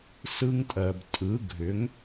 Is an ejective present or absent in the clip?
present